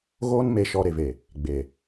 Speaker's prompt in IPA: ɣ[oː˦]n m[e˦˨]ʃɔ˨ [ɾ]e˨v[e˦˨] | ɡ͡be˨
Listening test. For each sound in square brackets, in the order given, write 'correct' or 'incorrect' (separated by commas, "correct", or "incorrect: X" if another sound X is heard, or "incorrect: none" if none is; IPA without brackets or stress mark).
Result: correct, incorrect: e˨, correct, incorrect: e˨